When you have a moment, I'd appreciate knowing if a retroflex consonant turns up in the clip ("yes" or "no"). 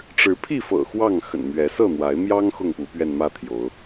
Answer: yes